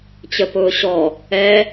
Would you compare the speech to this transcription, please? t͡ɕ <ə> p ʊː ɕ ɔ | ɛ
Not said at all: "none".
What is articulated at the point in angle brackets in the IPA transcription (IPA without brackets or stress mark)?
ə